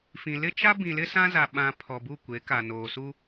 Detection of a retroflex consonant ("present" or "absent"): absent